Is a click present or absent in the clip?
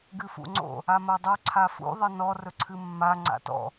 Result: present